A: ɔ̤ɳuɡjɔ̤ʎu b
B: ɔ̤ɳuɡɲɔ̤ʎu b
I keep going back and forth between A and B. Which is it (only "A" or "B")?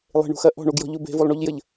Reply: A